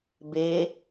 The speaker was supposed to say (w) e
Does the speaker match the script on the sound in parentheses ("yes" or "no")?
no